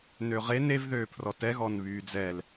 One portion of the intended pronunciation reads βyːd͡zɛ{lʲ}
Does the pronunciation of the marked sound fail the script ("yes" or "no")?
yes